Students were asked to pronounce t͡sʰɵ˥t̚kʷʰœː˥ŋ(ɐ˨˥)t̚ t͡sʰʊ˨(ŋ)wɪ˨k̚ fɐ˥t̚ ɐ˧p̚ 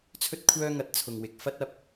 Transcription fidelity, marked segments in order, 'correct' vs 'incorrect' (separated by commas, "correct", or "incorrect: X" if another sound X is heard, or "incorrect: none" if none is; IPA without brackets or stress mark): correct, correct